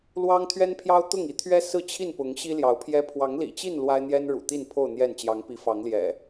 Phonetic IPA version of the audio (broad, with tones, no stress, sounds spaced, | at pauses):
l w ɑ˦ ŋ t̪ʰ ɥ ɛ˦ n pʰ j ɑ˦ ʊ̯ t̪ ʊ˥˨ ŋ i˨˦ t̪ʰ ɥ ɛ˦ s ɹ̩˥˨ t͡ɕʰ i˥˨ n p ʊ˨˦ ŋ ɕ i˦ l j ɑ˨˦ ʊ̯ pʰ j ɛ˦ pʰ w ɑ˨˦ ŋ l ḭ˨˩ t͡ɕ i˥˨ n l w a˦ ɪ̯ n̪ j ɛ˦ n ɻ ṵ˨˩ t̪ i˥˨ n pʰ o˥˨ ʊ̯ n̪ j ɛ˥˨ n t͡ɕ j ɑ˨˦ ŋ p i˨˦ f ɑ˨˦ ŋ l j ɛ̰˨˩